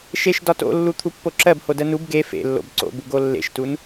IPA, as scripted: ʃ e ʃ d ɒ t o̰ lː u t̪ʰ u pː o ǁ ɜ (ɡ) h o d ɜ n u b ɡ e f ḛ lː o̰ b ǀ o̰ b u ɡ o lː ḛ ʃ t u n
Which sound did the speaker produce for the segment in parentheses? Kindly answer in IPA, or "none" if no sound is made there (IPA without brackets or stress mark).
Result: b